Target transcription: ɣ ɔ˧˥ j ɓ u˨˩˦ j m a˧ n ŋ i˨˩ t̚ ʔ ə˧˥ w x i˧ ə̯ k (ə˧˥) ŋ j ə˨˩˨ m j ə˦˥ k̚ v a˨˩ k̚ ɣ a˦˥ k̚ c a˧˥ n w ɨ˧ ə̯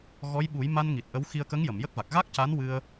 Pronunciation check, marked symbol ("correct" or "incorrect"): correct